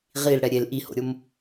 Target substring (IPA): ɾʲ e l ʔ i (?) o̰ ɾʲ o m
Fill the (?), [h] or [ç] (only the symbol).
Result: h